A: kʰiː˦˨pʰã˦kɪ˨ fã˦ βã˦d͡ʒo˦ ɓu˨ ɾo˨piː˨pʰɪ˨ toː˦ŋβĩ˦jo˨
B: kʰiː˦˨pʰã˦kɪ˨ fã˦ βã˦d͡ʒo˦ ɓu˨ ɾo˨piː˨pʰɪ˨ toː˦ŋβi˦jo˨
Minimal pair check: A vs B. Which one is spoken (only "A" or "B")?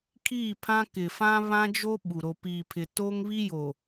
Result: B